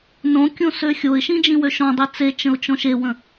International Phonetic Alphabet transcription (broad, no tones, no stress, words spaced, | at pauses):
nõ kʲõsøxʲoɪ̯ʃĩ d͡ʒĩwøʃɔ̃dˤi t͡set͡ʃə̃ʊ̯ t͡ʃɔ̃ʃewə̃